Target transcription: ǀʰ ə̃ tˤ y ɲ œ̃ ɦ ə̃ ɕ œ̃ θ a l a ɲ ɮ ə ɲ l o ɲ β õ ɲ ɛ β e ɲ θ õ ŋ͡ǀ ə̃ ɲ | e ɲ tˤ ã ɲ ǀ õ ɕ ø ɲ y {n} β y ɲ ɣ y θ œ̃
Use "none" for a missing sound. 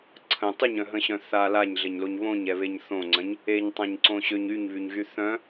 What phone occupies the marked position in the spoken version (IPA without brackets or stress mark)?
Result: ɲ